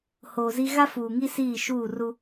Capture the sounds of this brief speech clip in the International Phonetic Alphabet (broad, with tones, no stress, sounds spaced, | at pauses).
h oː˨ z i˦ ɣ a˦ f uː˨ ŋ i˦ s iː˦˨ ʃ uː˦˨ r u˦